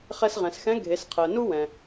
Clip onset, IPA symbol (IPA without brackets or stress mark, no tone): χ